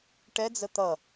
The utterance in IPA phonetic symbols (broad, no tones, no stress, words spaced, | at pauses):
ʈɛd͡zə t̪ʌ